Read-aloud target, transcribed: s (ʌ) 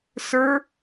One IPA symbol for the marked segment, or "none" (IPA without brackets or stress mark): ə˞